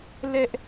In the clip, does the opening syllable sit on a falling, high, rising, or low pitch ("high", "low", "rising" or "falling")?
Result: high